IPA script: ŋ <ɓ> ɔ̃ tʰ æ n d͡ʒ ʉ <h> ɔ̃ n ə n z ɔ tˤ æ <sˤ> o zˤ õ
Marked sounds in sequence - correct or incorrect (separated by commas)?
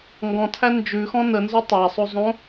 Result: incorrect, incorrect, correct